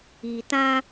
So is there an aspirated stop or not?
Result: no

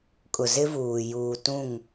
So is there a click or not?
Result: no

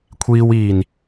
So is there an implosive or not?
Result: no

